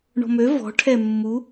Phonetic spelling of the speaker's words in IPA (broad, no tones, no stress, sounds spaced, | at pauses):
ɳ ɔ̤ m ø v ɔ̤ ʈʰ ɛ mː u